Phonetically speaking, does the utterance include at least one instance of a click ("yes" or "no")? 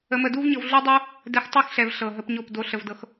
no